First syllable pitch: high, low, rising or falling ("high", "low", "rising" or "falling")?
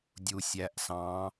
low